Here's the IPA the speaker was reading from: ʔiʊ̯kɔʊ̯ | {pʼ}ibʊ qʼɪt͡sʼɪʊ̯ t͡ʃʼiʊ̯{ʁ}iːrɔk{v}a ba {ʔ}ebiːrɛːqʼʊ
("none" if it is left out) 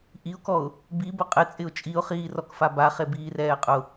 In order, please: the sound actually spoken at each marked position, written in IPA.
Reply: b, χ, f, χ

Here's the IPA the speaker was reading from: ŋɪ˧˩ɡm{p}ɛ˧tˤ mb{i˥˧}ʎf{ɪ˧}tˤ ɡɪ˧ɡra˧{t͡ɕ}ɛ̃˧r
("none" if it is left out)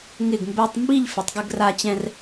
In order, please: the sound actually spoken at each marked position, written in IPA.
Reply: b, i˥˧, ɪ˩˧, t͡ɕ

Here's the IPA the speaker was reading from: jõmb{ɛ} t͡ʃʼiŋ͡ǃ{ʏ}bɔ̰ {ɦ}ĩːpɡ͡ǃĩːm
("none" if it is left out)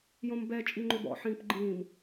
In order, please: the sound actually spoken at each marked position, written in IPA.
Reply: ɛ, ʏ, ħ

